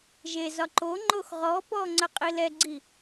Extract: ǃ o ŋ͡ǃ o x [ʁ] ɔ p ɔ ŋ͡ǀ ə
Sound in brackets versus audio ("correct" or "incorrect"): correct